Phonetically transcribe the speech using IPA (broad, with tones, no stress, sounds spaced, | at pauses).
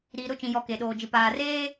ɾ iː˨ ɾ ʊ˦˨ t͡ʃ ĩ˨ j ɔ˨ k e˨ ɗ oː˨ d͡ʒ ɪ˨ p aː˨ r eː˦